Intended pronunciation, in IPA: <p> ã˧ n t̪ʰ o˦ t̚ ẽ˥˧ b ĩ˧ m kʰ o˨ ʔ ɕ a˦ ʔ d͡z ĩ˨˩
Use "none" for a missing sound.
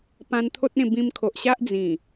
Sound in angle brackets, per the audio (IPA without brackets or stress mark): p